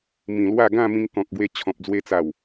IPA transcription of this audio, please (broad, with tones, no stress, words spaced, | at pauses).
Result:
mĩ˨˩lwa˥˧ ɡã˥˧mĩ˧ŋ kɔ̃˨k̚ɡwe˧ t͡ɕʰɔ̃˨p̚d͡zwe˧t͡sa˨˩w